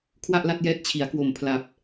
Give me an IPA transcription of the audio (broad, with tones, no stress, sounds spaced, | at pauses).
kʰ w a˥˩ ʔ l a˥˩ t̚ j ɛː˦˥ t̚ t͡ɕʰ i˩˦ a̯ k w o˨˩ m pʰ l a˨˩ p̚